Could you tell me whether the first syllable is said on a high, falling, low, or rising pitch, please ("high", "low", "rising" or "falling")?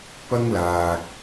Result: high